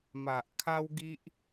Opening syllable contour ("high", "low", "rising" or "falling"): low